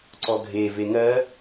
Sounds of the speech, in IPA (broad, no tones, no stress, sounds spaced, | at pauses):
ǀ ɔ ɡʱ e v e ŋ ɜ